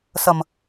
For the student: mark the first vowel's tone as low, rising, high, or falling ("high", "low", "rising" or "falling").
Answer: low